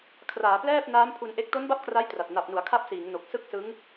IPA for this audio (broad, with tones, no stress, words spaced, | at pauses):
kʰraː˩˦plɛː˥˩p̚ naː˦˥mpʰu˧nʔe˦˥k̚ to˦˥nba˦˥p̚ kra˦˥jtra˨˩t̚ na˨˩p̚nu˩˦a̯ kʰa˦˥p̚siː˩˦ŋno˨˩k̚ sɯ˥˩k̚sɯ˦˥ŋ